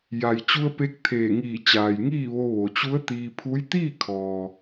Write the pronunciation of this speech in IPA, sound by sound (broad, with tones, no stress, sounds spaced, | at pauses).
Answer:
j a˩ j t͡ɕ u˧ ə̯ p e˧˥ k̚ t̪ʰ eː˧˩ ŋ iː˧˩ t͡ɕ aː˩ j ŋ iː˥˨ ʋ o˧ ʋ o˩ t͡ɕ u˧˥ ə̯ t̪ iː˧ pʰ u˧˥ j t̪ iː˥˨ kʰ ɔː˩